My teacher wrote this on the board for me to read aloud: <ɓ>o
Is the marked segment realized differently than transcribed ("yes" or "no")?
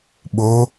no